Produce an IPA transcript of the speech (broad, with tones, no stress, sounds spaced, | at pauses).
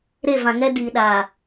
ɾ e˦˨ v ã˨ ŋ ɛ˦ d iː˨ ɗ aː˨